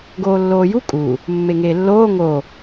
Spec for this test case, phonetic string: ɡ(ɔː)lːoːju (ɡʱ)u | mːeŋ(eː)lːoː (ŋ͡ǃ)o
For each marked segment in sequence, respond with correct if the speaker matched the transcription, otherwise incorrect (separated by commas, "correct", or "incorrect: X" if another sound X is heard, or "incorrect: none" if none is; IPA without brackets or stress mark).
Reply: incorrect: oː, incorrect: kʼ, correct, incorrect: ŋ